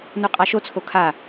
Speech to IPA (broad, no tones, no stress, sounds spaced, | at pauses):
n u qʼ a ʃ o t͡sʰ o kʰ a